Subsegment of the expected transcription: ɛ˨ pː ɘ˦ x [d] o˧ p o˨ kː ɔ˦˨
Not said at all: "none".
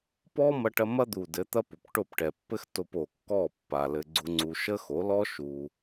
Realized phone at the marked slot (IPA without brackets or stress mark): t